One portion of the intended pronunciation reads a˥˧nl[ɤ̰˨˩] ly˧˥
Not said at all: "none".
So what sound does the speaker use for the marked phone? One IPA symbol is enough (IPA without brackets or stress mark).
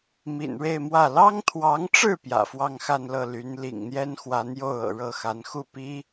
ɤ˥˩